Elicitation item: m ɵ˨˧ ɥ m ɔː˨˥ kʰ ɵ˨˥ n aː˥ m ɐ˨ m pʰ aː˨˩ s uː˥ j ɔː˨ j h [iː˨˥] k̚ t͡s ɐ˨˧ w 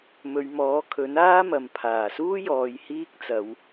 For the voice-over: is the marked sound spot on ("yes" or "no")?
no